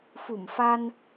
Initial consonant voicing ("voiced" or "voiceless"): voiceless